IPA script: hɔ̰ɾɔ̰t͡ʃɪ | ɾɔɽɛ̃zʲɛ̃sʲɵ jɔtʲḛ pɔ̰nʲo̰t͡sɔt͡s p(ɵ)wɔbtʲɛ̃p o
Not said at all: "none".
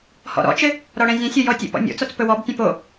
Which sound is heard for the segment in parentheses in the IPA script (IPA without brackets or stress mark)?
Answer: ɵ